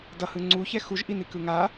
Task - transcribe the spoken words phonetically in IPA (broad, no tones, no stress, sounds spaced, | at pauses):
d ʌ h ɯ ŋ͡ǀ u ç ɛ x u ʒ ʔ i n i k ɯ ŋ a